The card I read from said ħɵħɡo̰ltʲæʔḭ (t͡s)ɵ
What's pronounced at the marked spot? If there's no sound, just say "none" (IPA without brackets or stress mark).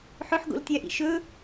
ʃ